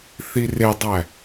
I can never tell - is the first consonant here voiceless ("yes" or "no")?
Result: yes